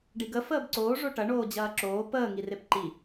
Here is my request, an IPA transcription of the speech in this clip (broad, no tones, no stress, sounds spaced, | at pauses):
ɖ i ɡ ə f əː b ǀ oː ʐ o ʈ ɐ ɳ oː d͡ʑ ɐː ǁ oː p əː ŋ i r e p ǃ i